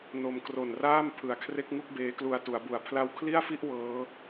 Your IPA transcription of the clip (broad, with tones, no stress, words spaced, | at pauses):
no˧m kro˨˩nraː˥˩m pʰɯ˩˦a̯kʰre˦˥k̚ŋu˥˩k̚ beː˦˥klu˧a̯ tu˩˦a̯bu˩˦a̯ pʰla˦˥wkʰli˥˩a̯fi˥˩ʔ wɤː˦˥